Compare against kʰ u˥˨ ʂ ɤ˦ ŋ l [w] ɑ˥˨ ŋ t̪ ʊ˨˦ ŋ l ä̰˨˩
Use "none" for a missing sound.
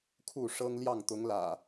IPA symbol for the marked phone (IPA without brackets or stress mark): j